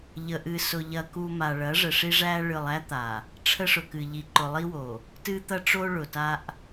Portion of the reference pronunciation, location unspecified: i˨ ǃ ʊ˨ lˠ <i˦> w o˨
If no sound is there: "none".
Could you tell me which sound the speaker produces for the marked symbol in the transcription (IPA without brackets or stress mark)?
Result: i˦